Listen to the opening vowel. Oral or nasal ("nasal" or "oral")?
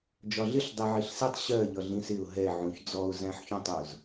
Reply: oral